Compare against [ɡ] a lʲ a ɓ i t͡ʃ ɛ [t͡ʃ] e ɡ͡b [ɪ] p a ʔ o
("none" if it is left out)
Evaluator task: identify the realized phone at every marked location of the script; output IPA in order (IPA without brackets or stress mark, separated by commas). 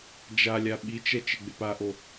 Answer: d͡ʒ, t͡ʃ, ɪ